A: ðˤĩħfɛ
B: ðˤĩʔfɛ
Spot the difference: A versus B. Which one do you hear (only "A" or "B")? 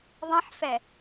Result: A